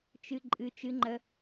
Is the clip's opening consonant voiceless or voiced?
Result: voiceless